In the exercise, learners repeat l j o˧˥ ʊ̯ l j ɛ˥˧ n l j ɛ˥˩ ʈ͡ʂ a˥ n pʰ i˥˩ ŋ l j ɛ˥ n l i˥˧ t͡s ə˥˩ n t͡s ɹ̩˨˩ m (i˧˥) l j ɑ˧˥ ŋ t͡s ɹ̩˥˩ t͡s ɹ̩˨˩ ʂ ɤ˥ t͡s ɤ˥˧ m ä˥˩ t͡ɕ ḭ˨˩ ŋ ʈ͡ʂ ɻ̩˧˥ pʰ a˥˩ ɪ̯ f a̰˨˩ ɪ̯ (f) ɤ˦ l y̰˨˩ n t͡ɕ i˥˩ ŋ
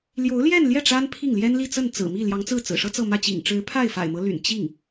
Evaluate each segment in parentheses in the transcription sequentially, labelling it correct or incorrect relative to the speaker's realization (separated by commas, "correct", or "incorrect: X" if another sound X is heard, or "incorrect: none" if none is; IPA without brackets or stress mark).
incorrect: i˥˩, incorrect: m